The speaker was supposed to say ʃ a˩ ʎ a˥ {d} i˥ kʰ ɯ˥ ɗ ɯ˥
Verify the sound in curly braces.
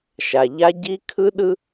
incorrect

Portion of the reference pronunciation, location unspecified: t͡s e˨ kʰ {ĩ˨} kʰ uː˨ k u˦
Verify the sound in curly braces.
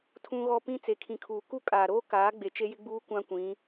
correct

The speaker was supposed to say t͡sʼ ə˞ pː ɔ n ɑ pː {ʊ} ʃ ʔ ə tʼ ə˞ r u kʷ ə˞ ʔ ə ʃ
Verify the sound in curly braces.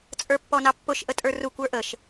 correct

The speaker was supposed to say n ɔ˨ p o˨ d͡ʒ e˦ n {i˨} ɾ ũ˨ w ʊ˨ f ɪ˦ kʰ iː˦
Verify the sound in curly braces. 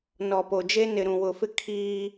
incorrect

